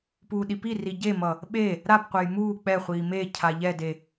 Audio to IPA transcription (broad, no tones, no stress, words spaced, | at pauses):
puːɗipiri ɟemʌ | ɓe | ɾapqʷɛj muː k͡pɛχʷiː me cʰaʎɛde